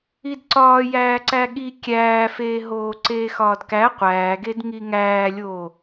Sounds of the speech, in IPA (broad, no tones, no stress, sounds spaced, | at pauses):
i d ǀ ɒː j æː ǀ æ ɠ i kʲ æː f eː ɦ oː ǀ eː x ɒː d k æ qʷ æː ɡ e d ŋ i ŋ æː lʲ oː